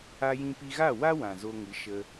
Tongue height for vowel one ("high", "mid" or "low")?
low